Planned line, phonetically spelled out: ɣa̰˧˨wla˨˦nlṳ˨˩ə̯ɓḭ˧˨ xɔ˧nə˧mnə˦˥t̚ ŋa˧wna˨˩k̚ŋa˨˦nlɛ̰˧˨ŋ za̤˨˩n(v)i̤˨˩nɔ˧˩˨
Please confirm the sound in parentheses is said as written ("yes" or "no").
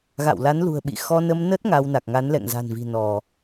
yes